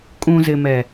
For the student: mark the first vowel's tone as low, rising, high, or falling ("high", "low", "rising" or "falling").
low